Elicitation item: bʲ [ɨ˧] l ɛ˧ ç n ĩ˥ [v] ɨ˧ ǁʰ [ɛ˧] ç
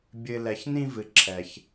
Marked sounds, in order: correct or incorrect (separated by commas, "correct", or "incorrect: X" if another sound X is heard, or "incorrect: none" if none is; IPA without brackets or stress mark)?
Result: correct, correct, correct